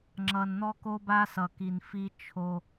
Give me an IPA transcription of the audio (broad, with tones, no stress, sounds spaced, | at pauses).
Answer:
ŋ͡ǁ ʌ˨ n n̪ ɔ˧ k o˧ b a˧ s ʌ˨ k i˨ n f i˧ t͡ʃʰ o˧